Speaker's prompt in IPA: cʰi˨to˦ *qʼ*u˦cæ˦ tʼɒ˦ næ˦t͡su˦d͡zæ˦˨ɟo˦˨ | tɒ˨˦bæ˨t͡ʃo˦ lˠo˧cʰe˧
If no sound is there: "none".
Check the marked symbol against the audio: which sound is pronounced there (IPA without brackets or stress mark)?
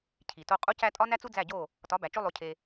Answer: qʼ